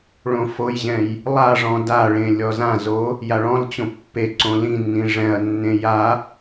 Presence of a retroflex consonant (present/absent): present